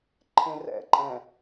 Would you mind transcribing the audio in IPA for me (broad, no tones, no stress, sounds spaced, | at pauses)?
ǃʰ ẽ r ɛ̰ ǃʼ ɛ̃